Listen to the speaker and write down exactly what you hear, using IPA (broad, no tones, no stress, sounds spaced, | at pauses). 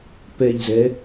p ɛ ʎ z ɛ